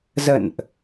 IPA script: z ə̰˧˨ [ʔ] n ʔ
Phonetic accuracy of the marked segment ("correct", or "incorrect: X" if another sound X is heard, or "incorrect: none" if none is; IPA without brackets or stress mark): incorrect: none